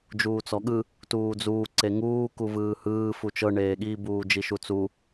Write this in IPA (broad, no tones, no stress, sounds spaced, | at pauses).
d͡ʒ uː t͡s ɔ ɠ ɯ | t uː d͡z uː ǀ e ŋ uː k u v ɯː h ɯː f u t͡ʃ ɤ ɳ eː ɠ i b uː d͡ʒ i ʃ u t͡s u